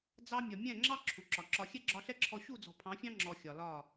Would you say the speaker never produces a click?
no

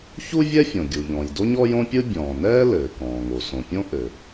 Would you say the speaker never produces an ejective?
yes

